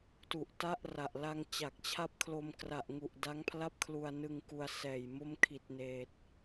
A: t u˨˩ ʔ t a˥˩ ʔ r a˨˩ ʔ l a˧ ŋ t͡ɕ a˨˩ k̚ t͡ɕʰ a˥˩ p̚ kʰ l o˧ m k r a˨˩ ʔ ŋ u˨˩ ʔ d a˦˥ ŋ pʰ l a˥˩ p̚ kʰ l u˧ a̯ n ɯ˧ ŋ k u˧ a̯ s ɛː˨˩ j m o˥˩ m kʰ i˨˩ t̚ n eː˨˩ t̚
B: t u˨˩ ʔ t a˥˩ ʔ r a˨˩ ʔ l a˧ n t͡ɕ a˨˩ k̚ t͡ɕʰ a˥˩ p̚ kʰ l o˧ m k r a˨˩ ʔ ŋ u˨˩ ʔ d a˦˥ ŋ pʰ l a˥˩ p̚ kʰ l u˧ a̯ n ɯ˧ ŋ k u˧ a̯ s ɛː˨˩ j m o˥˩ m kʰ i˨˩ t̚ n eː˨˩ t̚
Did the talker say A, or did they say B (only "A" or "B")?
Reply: A